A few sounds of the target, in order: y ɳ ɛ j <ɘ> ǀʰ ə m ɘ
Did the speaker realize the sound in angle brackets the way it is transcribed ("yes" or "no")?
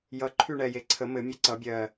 no